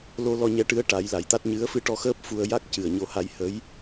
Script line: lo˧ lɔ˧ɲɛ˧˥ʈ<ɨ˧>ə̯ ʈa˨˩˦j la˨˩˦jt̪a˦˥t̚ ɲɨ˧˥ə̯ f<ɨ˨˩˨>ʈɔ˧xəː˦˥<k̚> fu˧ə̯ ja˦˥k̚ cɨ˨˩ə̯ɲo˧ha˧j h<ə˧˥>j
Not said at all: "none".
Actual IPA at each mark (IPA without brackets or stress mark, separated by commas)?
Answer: ɨ˧˥, ɨ˧, p̚, ə˧˥